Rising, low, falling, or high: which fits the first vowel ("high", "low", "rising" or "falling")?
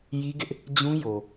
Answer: high